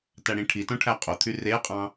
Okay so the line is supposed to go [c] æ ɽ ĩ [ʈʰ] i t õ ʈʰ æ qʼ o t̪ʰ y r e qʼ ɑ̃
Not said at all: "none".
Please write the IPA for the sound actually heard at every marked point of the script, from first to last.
t, ʈʰ

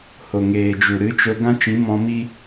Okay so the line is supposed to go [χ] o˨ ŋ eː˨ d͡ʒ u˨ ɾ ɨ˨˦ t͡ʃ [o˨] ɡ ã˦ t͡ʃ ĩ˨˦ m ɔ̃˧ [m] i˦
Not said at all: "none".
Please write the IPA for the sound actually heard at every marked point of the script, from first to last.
h, o˧, m

